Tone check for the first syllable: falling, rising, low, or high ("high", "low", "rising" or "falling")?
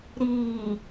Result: low